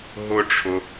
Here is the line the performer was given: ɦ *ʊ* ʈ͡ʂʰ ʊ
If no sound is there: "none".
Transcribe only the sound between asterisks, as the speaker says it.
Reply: ʊ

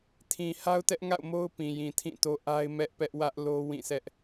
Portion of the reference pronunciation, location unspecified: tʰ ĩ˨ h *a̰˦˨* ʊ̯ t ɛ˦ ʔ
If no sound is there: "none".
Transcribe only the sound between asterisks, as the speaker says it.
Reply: a˦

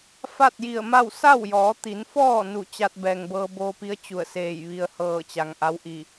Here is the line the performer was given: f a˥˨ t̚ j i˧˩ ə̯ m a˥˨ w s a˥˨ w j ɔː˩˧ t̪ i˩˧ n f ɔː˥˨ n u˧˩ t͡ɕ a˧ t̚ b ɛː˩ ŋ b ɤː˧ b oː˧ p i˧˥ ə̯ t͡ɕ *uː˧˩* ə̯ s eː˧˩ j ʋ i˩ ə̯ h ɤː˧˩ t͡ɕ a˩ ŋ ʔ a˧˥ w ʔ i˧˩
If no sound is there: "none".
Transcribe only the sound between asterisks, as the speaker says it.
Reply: u˧˩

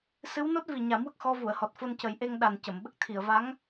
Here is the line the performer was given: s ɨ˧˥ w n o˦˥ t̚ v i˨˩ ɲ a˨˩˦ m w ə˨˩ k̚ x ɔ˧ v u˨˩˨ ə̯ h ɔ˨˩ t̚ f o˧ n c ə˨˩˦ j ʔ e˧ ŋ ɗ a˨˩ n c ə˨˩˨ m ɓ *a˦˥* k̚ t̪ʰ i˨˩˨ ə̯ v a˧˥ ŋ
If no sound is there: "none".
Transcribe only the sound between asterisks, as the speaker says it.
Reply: ə˦˥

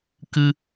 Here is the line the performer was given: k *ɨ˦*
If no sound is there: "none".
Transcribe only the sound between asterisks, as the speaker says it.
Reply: ɨ˦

